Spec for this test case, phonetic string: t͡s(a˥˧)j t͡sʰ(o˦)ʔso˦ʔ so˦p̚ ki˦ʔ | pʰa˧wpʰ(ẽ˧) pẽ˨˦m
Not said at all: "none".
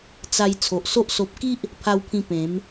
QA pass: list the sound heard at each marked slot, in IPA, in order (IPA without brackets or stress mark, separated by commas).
a˧, o˨, ĩ˧